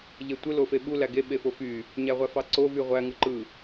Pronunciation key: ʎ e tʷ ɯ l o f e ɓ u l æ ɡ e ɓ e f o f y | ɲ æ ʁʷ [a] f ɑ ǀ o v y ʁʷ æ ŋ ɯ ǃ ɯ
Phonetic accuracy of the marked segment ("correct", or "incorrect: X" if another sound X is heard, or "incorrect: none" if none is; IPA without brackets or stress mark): incorrect: æ